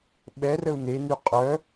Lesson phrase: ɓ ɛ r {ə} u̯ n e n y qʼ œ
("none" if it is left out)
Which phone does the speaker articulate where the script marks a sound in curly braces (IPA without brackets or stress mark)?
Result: ə